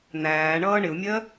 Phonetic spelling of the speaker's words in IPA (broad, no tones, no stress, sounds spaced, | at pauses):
n̪ æː ɳ ʌː ɳ ɪ u̯ mʲ ɜ